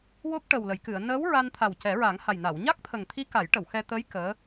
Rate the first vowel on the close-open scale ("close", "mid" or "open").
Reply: mid